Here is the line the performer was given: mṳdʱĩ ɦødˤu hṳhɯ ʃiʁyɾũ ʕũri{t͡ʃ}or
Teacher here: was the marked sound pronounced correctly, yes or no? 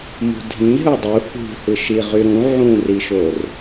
no